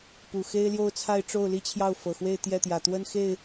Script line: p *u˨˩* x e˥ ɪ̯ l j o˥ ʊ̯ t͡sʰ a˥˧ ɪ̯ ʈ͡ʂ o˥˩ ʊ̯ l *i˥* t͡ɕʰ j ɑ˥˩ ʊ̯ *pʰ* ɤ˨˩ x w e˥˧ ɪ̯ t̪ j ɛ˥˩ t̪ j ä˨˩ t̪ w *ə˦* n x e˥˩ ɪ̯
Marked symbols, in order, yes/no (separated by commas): yes, yes, no, no